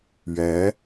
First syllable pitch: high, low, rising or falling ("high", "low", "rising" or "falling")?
rising